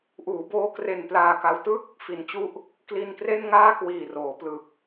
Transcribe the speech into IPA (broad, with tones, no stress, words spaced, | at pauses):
ʔuː˩˦boː˦˥ kre˧nplaː˧ka˦˥w tɯ˥˩k̚ | fi˩˦nt͡ɕu˦˥ʔ | kli˧nkre˥˩nŋaː˥˩ kwiː˨˩ roː˩˦plɯ˨˩k̚